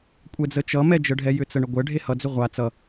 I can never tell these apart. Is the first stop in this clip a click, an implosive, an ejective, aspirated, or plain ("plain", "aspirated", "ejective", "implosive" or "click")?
ejective